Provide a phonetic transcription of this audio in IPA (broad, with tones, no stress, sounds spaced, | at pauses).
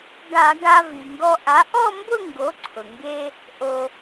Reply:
ɡ a˧˩˧ ɡ a˧ v i˩ ŋ ɡ ɔ˧ ʔ a˩˥ ʔ ɔ˥˧ m b ʊ˥˧ ŋ ɡ o˩˥ ǀʰ ʊ˩ ŋ ɡ e˧ | ʔ o˧